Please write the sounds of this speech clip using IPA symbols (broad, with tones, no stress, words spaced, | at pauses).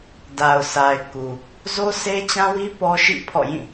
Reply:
da˨ʊ̯sa˨ɪ̯ ku˨ | zo˦se˦t͡ɕã˦wi˦ pɔ˦ʃḭ˦˨ pʰɔ̰˦˨jĩ˦˨